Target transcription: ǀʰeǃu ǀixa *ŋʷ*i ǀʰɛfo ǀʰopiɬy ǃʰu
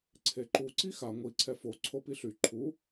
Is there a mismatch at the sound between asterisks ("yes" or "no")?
no